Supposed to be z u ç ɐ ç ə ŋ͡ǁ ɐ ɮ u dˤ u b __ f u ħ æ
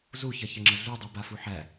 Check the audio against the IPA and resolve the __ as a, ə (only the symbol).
a